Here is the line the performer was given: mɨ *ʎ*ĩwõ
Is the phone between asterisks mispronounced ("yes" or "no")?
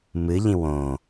no